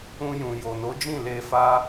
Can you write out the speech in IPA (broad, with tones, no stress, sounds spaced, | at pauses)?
ũ˧ j ũ˨ j o˨ n o˨˦ d͡ʒ ĩ˦˨ l e˧ f a˦